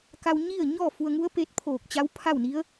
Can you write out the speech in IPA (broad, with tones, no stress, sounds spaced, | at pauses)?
k a˧ w ɲ i˥˨ ə̯ ɲ ɔː˥˨ f u˧ ə̯ ŋ u˧˥ ə̯ p e˧ t̚ pʰ oː˧˩ k̚ t͡ɕ a˧˥ w pʰ a˥˨ w n i˧˥ ə̯